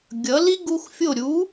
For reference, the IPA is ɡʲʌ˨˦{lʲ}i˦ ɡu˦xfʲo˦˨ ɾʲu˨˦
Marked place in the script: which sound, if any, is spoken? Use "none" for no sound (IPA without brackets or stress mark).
l